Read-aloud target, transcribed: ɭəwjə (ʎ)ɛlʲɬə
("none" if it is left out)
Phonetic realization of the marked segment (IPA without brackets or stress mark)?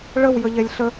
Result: ʎ